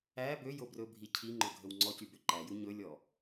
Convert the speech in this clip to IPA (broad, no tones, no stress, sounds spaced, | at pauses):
æ b ø j o b r ɵ bʱ i cʰ i ŋ͡ǃ ɵ ɡʱ ɵ w ŋ͡ǀ ɔ c y b ø ǃ æ j u ɲ ɵ lʲ ɔ